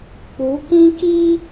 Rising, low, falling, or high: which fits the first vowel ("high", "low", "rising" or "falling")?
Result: rising